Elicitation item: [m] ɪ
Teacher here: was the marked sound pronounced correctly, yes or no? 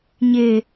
no